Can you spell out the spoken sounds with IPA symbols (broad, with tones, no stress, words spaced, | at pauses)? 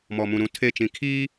mɔ˨mũ˨ ɾũ˨ tʰe˦˨ t͡ʃĩ˨kʰiː˦